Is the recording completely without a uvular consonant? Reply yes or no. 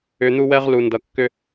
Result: no